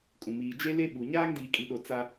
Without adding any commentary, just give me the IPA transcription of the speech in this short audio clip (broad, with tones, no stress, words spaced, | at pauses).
kʼũ˨ miː˨ d͡ʒe˦le˦ɓu˨ ɲaː˦ŋdiː˨kʼi˨ɗo˨ t͡sa˦